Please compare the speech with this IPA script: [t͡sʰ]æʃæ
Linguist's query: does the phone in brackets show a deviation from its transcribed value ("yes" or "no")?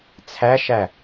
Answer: no